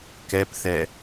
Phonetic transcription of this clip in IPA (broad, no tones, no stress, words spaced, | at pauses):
kɛpθɛ